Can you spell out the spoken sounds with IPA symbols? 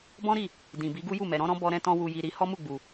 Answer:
b ɔ̃˦ ɾ i˦˨ | d ĩ˨ b i˨˦ ɡ u˦ j u˦˨ m ɛ˨ ɾ ɔ̃˨˦ ɾ ɔ̃˦ b ɔ˦ ɾ ɛ̃˦ t ɔ̃˦ w u˧ j i˧ ɾ i˧ h ɔ˦ m u˦˨ ɡ͡b u˨

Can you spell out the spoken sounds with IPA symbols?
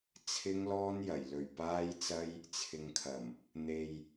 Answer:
t͡sʰ ɪ˥ ŋ l ɔː˥ n j ɐ˨˩ j l ɵ˨˩ ɥ p aː˥ j t͡s ɐ˥ j | t͡sʰ ɪ˨ ŋ kʰ ɐ˨˩ m | n̪ e˧ j

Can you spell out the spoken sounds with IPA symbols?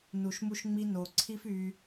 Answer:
n u˨ ʃ m u˧ ʃ ŋ͡m i˧ n o˨ ǀʰ i˦ f y˧

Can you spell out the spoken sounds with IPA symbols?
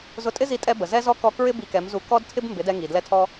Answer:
z ʊ˧ tʼ ɪ˦ z i˧ tʼ ɛ˧ b ə˨ z ɛ˦ z ɔ˦ k ɔ˧ k ɹ ɪ˦ b i˧ k ɛ˨˦ m z u˧ k ɔ˦ d tʰ ɪ˦ b m b ɪ˨˦ d ɛ˧ ŋ i˨ d l ɛ˧ tʰ ɔ˧

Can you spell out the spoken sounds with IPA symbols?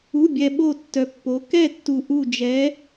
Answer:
u˧˥˧ bʲ ɛ˧ ɓ o˥˧ tː œ˧ pː o˧˥ k ɛ˥˧ tː u˧ ʔ u˥˧ d͡ʒ ɛ˧˥

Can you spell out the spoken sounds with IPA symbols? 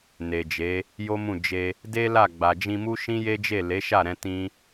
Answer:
n e˨ d͡ʒ e˨˦ | j o˦ m ũ˦˨ d͡ʒ e˧ | d e˦ l a˦˨ ɡ͡b a˨ d͡ʒ ĩ˧ m u˦ ʃ ĩ˦ j e˦ d͡ʒ e˦˨ l e˨˦ ʃ a˦˨ ɾ ɛ̃˧ t ĩ˦

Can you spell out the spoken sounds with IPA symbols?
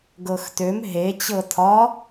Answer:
ɡ ɤ x t ø m ɦ e t͡ɕ ɤ tʰ ɒ

